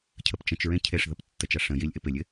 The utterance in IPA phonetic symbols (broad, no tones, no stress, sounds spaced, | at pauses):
cʰ ə p t͡ʃ ə̃ t͡ʃ ɹ ẽ cʰ e ʂ ð ə p tː ə t͡ʃ a ʂ ə̃ j i lʲ ʔ ɪ p ɪ lʲ ɪ